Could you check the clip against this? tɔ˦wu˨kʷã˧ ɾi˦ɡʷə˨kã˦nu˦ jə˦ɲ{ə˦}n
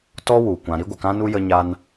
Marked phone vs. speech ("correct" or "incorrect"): incorrect